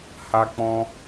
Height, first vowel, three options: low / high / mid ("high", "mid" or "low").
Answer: low